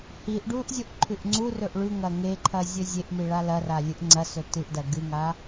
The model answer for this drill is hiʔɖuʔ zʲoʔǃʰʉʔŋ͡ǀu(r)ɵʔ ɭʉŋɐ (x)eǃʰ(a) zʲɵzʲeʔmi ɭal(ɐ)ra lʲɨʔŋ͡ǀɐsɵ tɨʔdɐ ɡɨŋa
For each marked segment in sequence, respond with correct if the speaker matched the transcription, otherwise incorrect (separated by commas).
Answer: correct, incorrect, incorrect, correct